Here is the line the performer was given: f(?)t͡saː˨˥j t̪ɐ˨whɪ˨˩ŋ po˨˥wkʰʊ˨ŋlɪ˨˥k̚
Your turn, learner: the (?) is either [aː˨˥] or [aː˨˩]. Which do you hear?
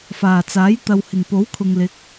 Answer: aː˨˩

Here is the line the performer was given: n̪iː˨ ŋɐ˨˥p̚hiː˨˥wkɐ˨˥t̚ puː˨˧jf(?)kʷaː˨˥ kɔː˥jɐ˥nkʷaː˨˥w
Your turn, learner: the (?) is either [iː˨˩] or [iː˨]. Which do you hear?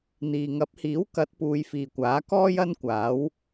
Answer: iː˨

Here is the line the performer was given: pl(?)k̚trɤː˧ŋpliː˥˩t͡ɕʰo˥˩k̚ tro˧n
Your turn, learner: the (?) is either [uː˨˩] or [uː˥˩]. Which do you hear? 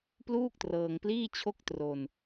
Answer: uː˥˩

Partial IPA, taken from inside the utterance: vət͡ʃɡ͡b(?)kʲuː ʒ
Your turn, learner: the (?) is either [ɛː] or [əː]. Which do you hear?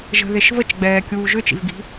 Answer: ɛː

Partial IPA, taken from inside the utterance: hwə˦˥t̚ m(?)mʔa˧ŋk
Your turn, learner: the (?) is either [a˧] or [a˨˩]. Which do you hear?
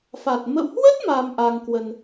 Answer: a˧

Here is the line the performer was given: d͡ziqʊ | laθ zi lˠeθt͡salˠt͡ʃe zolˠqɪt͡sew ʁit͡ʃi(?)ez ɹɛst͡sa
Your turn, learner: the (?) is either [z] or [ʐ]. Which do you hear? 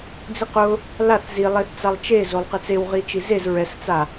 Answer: z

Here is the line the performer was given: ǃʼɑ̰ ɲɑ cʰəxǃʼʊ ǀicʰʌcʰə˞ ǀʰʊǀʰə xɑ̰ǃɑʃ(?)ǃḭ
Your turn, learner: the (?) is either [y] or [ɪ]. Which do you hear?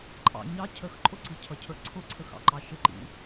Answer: ɪ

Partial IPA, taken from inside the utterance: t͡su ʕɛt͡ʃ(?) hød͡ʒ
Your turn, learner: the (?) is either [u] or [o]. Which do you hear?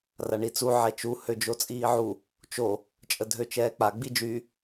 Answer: u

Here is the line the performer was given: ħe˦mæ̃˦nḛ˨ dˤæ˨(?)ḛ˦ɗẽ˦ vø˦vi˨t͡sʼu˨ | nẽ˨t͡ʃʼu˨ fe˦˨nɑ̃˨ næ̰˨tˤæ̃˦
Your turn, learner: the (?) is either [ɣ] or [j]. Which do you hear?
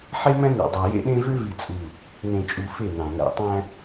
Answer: j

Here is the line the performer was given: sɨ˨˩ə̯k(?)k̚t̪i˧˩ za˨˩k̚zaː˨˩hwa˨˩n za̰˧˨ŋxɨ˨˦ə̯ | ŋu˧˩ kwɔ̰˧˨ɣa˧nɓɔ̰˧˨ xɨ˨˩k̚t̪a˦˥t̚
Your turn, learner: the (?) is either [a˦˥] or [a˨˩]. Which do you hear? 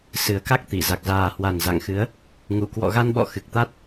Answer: a˦˥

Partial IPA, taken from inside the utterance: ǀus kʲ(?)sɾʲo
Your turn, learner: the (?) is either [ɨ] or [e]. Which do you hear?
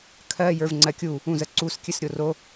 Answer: ɨ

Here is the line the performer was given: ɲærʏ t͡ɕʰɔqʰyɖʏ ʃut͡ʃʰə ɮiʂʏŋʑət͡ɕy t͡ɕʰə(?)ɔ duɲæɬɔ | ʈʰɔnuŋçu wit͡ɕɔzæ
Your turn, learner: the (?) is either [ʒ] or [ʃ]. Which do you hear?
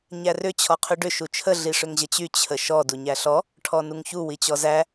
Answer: ʃ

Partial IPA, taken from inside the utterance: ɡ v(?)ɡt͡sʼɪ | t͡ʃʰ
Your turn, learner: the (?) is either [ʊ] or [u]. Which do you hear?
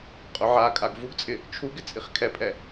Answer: u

